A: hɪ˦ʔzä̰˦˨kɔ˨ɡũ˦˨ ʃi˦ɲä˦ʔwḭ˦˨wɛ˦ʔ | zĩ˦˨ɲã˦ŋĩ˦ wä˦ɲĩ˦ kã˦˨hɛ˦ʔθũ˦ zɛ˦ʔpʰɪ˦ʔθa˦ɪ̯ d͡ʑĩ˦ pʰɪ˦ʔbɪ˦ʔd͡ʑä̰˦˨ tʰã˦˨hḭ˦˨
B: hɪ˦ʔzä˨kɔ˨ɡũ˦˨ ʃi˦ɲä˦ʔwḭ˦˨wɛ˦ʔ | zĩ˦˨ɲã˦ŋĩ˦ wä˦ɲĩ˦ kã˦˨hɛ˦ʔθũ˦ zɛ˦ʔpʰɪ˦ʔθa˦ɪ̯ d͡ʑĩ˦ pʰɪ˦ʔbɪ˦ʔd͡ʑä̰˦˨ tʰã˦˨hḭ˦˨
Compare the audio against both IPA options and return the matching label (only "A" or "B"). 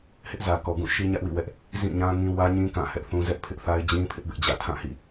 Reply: B